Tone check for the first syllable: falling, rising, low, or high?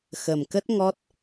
low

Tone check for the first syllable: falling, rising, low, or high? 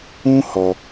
high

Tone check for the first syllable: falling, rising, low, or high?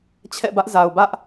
falling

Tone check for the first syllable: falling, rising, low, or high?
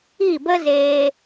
falling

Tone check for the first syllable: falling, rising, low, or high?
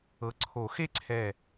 rising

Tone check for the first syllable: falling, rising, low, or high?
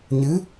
rising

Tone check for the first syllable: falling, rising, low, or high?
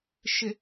low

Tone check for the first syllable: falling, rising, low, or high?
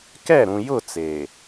falling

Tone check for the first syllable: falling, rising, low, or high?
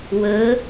rising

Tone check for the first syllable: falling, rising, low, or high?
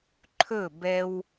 falling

